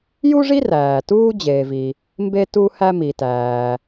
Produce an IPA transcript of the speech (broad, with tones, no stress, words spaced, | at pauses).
ju˥ʐi˥ ræː˩tuː˥ d͡ʑeː˩vi˩ | mbe˥ tu˥hæ˥mi˩ tæː˩